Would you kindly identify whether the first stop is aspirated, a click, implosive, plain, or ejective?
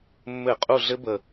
ejective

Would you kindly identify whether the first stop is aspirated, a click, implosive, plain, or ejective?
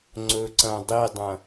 click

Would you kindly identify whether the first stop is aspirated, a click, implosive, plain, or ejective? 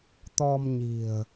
plain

